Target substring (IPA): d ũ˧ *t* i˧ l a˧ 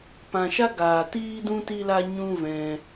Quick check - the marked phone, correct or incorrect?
correct